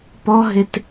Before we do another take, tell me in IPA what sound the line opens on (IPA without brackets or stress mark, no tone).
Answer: p